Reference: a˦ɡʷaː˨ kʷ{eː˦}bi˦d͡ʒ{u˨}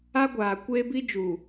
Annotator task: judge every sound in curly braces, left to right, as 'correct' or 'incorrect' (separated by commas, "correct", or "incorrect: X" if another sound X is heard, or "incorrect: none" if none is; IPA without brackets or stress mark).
correct, incorrect: uː˨